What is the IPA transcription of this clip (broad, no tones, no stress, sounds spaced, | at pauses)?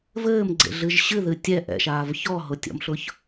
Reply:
v ɘː m ɡ͡ǀ ḛ ɮ ɨ ʒ ɕ ɨ ð ɨ tʲ ɛ ʔ ɛ̰ ʃ aː v ç ɔ ɦ ʊ tʲ ɔ̰ m ɬ ʊ ç